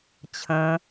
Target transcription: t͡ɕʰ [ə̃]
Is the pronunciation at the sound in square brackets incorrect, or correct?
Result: correct